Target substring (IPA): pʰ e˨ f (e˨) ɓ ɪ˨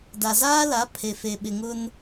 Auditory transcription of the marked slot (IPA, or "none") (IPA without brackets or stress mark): e˨